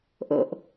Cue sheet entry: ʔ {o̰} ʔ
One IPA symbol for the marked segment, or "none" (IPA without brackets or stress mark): o̰